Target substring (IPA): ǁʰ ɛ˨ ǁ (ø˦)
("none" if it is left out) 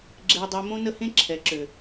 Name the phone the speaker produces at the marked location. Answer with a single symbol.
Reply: ø˨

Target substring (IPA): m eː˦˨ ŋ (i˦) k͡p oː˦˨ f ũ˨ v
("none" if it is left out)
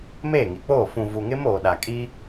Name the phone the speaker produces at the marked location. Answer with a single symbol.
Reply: i˨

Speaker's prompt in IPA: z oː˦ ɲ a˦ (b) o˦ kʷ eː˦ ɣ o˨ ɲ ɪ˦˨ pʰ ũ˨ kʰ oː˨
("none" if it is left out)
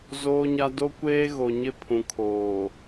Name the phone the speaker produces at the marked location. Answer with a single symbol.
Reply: d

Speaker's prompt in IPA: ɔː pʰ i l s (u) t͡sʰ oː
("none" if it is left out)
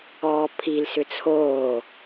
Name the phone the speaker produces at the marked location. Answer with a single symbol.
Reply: ʏ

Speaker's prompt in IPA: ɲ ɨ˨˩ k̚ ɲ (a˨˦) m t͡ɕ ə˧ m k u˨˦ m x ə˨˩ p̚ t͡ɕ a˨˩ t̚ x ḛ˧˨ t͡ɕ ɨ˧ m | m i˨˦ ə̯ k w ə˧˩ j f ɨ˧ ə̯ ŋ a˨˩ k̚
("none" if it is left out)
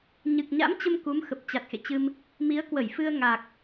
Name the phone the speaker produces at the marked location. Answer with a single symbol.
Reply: a̰˧˥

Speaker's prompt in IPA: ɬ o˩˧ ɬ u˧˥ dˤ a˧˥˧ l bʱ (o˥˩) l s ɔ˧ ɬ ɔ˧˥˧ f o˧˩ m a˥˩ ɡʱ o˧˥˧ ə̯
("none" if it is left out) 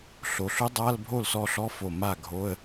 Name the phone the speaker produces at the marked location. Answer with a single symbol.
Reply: o˥˩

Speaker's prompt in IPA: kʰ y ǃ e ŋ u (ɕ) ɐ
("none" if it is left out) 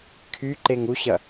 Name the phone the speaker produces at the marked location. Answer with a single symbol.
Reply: ɕ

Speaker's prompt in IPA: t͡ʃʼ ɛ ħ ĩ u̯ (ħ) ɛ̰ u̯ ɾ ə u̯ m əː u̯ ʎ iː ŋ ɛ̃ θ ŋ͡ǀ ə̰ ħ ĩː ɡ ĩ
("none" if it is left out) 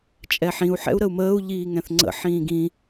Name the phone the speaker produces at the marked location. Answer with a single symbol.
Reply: ħ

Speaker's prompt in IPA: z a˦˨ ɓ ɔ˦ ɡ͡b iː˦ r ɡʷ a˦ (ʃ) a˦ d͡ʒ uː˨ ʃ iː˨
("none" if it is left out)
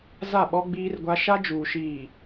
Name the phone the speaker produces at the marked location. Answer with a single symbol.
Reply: ʃ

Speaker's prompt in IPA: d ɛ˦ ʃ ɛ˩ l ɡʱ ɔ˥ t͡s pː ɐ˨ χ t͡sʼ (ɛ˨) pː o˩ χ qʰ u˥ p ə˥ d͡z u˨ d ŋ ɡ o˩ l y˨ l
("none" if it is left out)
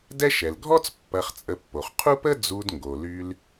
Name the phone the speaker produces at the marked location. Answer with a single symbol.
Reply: ə˨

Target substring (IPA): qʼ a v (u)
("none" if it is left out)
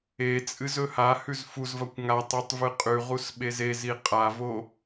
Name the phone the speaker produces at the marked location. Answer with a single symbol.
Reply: o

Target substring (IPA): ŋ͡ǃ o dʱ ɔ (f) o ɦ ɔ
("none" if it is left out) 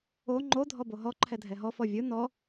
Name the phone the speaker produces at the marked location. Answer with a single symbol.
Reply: b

